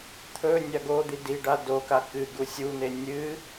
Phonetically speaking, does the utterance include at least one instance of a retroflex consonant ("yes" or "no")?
yes